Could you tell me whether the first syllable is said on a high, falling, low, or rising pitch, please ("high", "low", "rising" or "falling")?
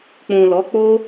low